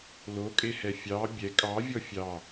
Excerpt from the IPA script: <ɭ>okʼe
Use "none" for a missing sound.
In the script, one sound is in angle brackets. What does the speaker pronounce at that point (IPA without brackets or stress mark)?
l